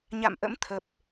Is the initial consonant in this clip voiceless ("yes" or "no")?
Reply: no